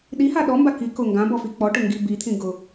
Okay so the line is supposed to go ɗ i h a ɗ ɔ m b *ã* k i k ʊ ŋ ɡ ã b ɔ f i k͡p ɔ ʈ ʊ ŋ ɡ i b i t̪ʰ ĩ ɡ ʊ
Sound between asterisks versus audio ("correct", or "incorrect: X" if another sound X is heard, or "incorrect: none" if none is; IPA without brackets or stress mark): incorrect: a